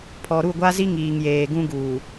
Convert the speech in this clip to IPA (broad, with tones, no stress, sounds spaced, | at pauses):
pʰ ɔ˨ ɾ u˦˨ ɡʷ a˦ z i˦ ŋ iː˨ ŋ j eː˨ ɡ ũ˦ ɡ uː˨